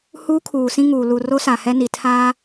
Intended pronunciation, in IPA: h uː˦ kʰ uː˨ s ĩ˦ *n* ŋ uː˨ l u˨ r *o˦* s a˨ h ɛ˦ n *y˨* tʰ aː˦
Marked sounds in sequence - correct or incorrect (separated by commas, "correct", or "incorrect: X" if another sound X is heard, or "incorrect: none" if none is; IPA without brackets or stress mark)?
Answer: incorrect: none, correct, incorrect: i˨